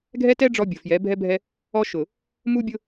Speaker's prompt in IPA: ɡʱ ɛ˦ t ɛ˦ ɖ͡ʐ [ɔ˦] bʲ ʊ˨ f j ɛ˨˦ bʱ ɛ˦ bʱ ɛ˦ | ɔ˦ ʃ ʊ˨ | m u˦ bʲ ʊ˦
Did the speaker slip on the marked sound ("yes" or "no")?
no